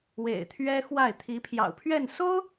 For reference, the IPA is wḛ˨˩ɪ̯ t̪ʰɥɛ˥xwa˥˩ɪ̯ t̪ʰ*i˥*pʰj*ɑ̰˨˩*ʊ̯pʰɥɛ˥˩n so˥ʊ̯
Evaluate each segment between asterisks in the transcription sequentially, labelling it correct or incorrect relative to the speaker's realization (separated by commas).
incorrect, correct